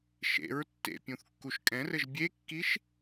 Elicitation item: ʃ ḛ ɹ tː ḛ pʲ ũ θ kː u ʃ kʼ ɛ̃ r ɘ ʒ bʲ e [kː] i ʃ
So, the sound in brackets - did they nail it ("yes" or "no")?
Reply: yes